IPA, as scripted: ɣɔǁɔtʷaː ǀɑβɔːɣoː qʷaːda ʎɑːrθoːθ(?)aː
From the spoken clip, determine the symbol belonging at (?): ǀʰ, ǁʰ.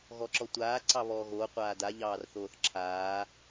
ǁʰ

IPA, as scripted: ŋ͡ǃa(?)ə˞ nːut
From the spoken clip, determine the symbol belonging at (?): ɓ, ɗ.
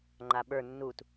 ɓ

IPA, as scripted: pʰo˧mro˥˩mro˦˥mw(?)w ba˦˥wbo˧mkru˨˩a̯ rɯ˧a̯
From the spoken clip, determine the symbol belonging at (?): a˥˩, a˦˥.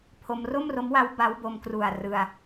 a˦˥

